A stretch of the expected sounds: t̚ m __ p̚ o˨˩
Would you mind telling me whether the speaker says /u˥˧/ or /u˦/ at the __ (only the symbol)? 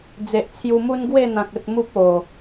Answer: u˦